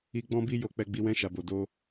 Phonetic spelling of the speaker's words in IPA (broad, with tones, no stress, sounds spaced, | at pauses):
i˧ ɡ͡b ɔ̃˦ b i˦ j o˧ k͡p ɛ˧ ɡ͡b i˧ w ɛ̃˧ ʃ a˨ b o˨ d o˧